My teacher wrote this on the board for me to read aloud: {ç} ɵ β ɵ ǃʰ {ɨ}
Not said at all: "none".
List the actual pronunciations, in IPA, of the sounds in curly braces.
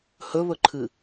h, ɨ

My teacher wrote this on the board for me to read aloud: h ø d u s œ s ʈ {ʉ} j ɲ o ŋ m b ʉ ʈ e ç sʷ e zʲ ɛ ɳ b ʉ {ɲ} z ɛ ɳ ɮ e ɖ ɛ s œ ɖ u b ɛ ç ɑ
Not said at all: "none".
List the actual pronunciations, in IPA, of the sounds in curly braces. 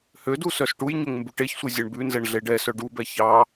u, n

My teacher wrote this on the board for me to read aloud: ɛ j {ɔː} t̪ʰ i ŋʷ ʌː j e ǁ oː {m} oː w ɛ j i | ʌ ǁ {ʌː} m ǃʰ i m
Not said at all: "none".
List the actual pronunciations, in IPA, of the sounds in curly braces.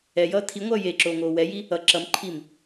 ʌː, ŋ, ʌ

